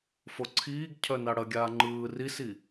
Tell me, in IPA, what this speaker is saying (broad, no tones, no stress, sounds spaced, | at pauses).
f o ǀʰ iː ɡ cʰ œ n a ɽ ɐ ɡʲ aː ŋ͡ǃ ɯː r i s i